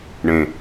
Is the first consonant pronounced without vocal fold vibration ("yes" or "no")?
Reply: no